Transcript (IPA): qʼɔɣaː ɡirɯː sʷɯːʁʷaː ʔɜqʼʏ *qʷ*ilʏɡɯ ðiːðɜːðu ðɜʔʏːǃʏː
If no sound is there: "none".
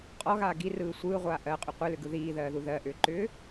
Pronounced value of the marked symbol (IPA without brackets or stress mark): qʷ